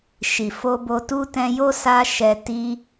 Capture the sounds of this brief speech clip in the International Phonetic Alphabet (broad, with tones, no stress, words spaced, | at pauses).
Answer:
ʃi˨fo˧bo˧tu˦ tɛ̃˧jo˦ sa˦ ʃɛ˧ ti˦